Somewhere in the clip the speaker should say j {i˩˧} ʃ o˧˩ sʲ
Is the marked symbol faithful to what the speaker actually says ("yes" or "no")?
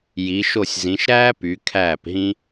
yes